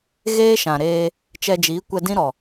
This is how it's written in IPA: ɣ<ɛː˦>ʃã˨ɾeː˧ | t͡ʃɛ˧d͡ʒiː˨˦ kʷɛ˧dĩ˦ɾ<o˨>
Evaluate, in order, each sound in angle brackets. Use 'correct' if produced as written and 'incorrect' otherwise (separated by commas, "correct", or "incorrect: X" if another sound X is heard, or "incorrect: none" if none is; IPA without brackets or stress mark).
incorrect: eː˦, incorrect: ɔ˨